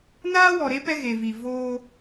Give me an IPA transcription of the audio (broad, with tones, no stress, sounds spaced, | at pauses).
n aː˦ w ɔ˨ ɾ e˦ p ɛ˦ ɣ e˨ v i˨ v oː˦